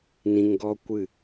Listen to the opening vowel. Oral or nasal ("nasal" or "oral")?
nasal